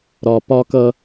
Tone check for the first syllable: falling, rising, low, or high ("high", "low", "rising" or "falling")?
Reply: low